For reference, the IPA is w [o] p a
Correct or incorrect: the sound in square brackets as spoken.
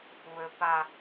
incorrect: ɵ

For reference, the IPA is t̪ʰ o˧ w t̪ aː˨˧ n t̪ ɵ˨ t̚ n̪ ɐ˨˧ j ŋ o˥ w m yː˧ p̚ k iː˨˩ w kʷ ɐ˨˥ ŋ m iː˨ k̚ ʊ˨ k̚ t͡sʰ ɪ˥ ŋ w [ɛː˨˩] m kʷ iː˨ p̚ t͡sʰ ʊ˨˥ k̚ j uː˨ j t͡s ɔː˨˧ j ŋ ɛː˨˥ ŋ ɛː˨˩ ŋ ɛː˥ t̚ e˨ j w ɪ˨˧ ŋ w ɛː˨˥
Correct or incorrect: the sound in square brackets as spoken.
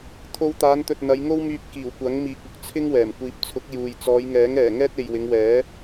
correct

